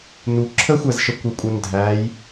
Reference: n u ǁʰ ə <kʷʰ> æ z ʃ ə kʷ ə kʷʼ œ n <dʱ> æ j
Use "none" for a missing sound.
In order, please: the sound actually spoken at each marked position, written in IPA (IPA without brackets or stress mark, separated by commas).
xʷ, dʱ